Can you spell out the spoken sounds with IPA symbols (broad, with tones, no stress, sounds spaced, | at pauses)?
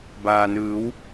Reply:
b aː˩ n ɯː˩˧ w